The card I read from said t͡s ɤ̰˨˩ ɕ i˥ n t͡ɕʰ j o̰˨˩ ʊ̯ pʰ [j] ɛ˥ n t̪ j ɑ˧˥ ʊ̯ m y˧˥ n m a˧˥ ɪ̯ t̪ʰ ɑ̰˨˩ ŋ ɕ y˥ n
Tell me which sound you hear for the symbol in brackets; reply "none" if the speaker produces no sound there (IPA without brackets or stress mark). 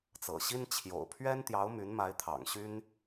ɥ